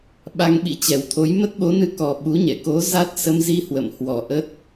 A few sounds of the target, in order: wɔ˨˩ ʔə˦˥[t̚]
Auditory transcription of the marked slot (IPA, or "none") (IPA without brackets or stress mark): t̚